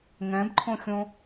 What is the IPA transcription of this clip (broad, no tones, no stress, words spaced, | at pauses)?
ŋɛ̃bǃʰõxʲõ